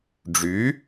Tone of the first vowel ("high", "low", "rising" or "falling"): rising